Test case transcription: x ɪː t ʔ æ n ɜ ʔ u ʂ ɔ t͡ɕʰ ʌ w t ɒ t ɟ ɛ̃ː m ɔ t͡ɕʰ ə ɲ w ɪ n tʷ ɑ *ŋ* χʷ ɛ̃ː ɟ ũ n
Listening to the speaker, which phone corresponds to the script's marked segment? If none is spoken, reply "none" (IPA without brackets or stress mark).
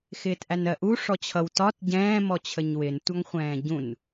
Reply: ŋ